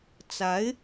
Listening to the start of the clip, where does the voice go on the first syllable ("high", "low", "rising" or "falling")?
rising